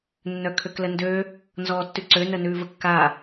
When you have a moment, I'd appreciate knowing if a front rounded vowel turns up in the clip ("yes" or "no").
yes